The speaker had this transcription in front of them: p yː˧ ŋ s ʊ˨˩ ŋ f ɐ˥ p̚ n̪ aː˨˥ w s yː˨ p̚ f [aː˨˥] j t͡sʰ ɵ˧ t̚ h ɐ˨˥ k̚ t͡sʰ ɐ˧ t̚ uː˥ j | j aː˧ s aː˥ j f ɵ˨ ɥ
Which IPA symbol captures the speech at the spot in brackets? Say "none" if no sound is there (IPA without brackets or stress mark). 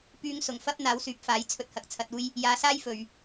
aː˨˥